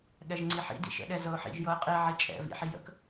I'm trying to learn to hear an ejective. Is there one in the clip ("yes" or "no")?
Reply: yes